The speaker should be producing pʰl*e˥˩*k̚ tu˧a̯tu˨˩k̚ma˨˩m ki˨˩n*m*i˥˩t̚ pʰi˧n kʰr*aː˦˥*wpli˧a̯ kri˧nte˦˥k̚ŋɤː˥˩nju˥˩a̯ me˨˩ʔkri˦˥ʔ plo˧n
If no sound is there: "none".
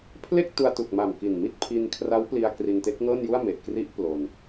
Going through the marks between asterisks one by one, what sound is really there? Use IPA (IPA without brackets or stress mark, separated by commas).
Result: e˥˩, m, a˦˥